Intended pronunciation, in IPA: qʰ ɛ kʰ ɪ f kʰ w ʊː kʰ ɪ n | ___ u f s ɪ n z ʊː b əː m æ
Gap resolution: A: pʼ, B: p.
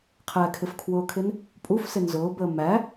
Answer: A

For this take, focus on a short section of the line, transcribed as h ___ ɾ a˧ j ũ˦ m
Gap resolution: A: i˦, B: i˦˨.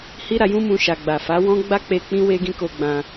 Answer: A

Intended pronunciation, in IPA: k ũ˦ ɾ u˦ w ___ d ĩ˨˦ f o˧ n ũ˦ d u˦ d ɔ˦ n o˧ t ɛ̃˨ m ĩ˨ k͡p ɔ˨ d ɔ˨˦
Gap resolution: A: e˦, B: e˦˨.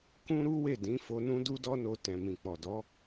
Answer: B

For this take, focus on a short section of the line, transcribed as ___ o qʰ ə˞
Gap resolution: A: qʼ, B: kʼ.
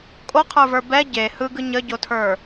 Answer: B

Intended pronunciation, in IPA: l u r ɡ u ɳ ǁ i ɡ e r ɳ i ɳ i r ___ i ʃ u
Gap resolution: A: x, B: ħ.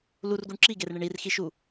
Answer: A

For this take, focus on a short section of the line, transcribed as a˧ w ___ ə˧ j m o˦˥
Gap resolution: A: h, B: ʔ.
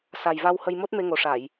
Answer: A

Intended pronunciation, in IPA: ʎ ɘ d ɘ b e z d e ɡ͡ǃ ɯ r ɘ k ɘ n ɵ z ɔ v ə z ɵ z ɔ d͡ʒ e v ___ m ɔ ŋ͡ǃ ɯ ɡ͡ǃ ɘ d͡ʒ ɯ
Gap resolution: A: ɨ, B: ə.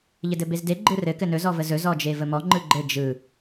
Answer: B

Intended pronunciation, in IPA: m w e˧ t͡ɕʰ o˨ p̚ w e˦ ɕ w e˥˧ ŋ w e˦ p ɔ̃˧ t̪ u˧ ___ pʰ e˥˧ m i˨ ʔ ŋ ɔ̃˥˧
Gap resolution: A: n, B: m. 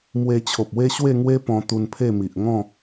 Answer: A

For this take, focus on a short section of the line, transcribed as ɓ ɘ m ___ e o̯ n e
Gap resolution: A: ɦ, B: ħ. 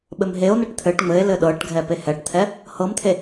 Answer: A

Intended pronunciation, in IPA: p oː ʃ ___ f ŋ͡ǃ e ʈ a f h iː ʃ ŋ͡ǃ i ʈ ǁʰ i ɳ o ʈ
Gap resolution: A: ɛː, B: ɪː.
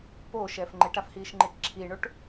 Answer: A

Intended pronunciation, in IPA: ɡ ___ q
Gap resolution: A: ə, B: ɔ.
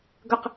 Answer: A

